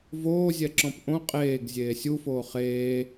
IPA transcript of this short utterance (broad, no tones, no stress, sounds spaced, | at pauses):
v oː zʲ ɛ ǁ ɔ̃ p ʔ õ qʼ eː ɡ zʲ eː sʲ u f oː χ eː